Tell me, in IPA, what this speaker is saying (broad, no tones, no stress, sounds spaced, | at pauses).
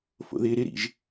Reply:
f o̰ ð ɪː ɾ ɪ ɾ ḭ ʒ